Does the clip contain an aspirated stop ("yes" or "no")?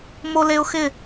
no